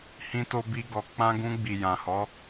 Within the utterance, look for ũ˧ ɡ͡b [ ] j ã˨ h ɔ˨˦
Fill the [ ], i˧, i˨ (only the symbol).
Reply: i˨